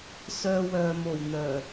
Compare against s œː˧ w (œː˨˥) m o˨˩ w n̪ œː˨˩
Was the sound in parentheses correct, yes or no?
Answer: no